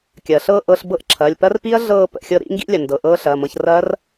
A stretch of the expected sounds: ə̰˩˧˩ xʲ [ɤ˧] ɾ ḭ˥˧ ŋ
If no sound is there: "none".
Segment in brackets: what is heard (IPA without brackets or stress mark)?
ɤ˧